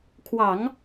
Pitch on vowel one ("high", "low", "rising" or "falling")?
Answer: low